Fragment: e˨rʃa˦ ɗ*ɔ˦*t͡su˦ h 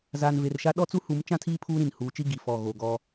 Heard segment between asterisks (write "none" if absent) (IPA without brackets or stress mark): ɔ˦